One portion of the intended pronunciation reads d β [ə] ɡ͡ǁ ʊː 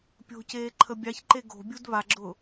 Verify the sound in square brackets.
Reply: incorrect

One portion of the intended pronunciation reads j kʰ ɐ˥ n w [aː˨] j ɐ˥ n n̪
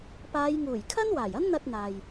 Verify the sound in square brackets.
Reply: incorrect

